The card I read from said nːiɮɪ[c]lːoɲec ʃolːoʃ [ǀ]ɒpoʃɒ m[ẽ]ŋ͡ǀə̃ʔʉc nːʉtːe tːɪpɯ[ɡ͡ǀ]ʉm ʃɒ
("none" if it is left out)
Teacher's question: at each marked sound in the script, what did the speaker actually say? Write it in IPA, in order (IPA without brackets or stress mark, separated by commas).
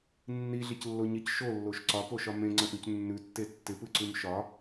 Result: c, ǀ, ẽ, ǀ